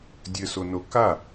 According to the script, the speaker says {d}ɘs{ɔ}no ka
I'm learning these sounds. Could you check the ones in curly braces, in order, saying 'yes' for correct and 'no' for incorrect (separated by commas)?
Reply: no, no